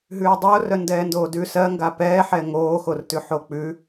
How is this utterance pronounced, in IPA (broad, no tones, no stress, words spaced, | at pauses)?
ɦʉːdˤoːrœ ndɛːndoːdʉ sɜ ŋɡapɛːħɛ ŋoːxortʉ ħok͡pʉ